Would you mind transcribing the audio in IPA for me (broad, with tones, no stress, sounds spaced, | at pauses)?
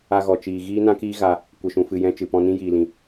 a˧ ɣ ɔ˨ t͡ʃ iː˨ ɣ iː˦ n ã˦ k iː˦ ɣ a˧ | kʷ ə˧ ʃ ũ˧ f ɨ˧ j ɛ̃˦ t͡ʃ ɨ˨ p ɔ̃˧ n ĩ˦ j iː˧ l ĩ˧